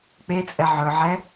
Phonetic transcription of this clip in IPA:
k͡p e t͡sʼ ɛ ʕ ɵ ʕ ɛ

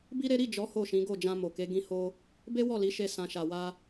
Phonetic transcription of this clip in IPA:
b i˦ ɾ e˦ ɾ i˦˨ d͡ʒ ɔ˨˦ h o˦˨ ʃ ĩ˨˦ ɡ o˦˨ d͡ʒ ã˧ m o˨ k e˨˦ ɡ ĩ˧ h o˧ | b e˦ w ɔ˦˨ l i˨˦ ʃ e˧ s ã˨ ʃ a˨ w a˧

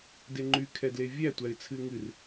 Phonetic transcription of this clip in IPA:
d e ŋ͡ǃ y kʰ ɛ d l e vʲ æ tʷ æ ɪ̯ t͡sʰ ɨ ɪ̯ ŋ ɨ r

